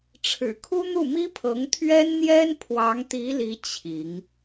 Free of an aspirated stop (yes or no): no